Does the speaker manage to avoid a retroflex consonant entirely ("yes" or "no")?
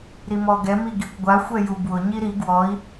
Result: yes